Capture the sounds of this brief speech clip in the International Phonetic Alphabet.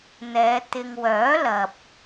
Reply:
n̪ ɛː˨˧ t̪ ɪ˨ ŋ w œː˨˥ l ɐ˨ p̚

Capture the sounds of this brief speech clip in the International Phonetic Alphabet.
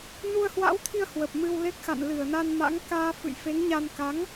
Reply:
n u˧ ə̯ h w a̰˧˥ w t̪ʰ i˧ ə̯ h w ə˨˩ p̚ m ɨ˧ w l e˦˥ k̚ x a̰˧˨ n l ɨ˧˩ ə̯ n a˧ n m a̰˧˥ ŋ k aː˧ f ɨ̰˧˨ j f e˨˦ ŋ ɲ a˧ n k a˨˦ ŋ

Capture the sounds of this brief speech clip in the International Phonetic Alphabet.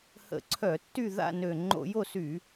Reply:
h ə̰˧˩˧ ǀʰ œ˧˩˧ tː y˦˨ ð a̰˦˨ n ø˨˩ ŋ͡ǃ o̰˧˩˧ j o˦˨ s y˧˩˧

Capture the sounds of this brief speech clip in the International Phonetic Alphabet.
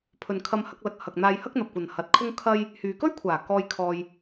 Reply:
pʰ ɵ˨ n kʰ ɐ˧ m h ɐ˧ k̚ l ɐ˨ k̚ h ɐ˨ k̚ n̪ aː˧ j h ɐ˥ k̚ n̪ ɐ˨ p̚ kʷ ɐ˨ n h ɐ˨ t̚ kʰ ʊ˥ ŋ kʰ ɐ˥ j | h yː˨ k ɵ˥ ɥ kʷʰ aː˨˩ k ɔː˧ j kʰ ɔː˧ j

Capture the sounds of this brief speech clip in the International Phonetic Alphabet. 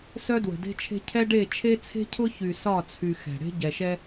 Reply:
s œ˦ d w ə̤˨ d e̤˦ t͡ʃʰ e̤˦ cʰ ɛ˦ ɖ e˦˨ t͡ʃʰ e˦ t͡sʰ e̤˦ cʰ ʊ˦ ç y˨ s ɒ˦˨ t͡sʰ y˨ x ɛ̤˨ ɽ e̤˦ ɟ ɛ˨ ʃ ɛ˦

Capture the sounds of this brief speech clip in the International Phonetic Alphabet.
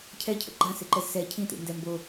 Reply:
cʰ ɛ cʰ ə̰ ɡ͡ǃ ã s e ǃ ɛ z s ɛ cʰ ĩ t ḭ n d ɛ m b o

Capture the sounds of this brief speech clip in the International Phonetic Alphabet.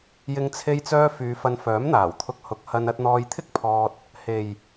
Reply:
j ɪ˨˧ ŋ t͡sʰ e˧ j t͡s œː˧ f yː˨˧ f ɐ˧ n f œː˨˥ m n̪ aː˨˩ w t̪ʰ ʊ˧ k̚ h ʊ˨˥ k̚ h ɐ˧ n ɐ˧ t̚ n̪ ɔː˧ j t̪ʰ ɪ˥ k̚ pʰ ɔː˧ t̚ | h e˨ j

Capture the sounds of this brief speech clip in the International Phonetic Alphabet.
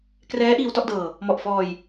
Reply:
k r ɛː˦˥ ʔ iː˧ w t ɔ˥˩ ʔ d ɤː˧ | m ɔ˨˩ ʔ f ɔː˧ j

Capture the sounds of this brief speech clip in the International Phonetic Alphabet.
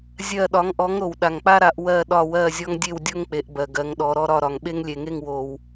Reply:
zʲ ɜ˦˨ ɗ ɒ˨˥ ŋ ʔ ɔ˨˥ ŋ ɾ o˩ w ɗ a˩ ŋ k͡p a˦ ɾ a˩˧ ʔ w ɜ˦˨ ɗ ɒ˦˨ w ɜ˦˨ zʲ ɔ˦ ŋ dʲ e˦˨ w dʲ o˦ ŋ k͡p e˩˧ ʔ b ɜ˩ ɡ ɜ˩˧ ŋ ɗ ɔ˩˧ ɾ ɔ˦ ɾ ɒ˦˨ ɾ ɒ˩ ŋ ɓ e˦ ŋ lʲ e˩ ŋ e˦˨ ŋ w o˩ w

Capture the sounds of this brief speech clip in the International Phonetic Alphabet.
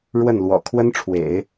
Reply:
ɻ w ə˥˩ n l w ɔ̰˨˩ kʰ w ə˥ n ʈ͡ʂʰ w ḛ˨˩˦ ɪ̯

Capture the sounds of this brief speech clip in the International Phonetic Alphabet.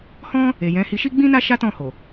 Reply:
h ɔ̃˦ | e˨ j ɛ̃˨˦ h i˧ ʃ i˦ ɡ͡b ĩ˦ n a˦ ʃ a˦ t ɔ̃˦˨ h o˨

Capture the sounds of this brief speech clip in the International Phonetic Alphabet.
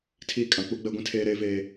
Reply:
tʰ iː˦ kʼ ã˨ k͡p u˦ ɡ͡b ɛ˦ ɡʷ ĩ˦ tʰ eː˦ ɾ eː˦ v eː˦

